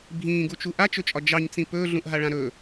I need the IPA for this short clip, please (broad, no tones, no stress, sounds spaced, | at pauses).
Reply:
bʱ ĩː ɡ u t͡ʃ u ʔ a t͡ʃ ɵ t͡ʃʼ ɒ d͡ʒ ɑ ɲ t͡s ĩ p ɵː ɮ ũ ʔ ɦ a ɭ ã ɾ ɵ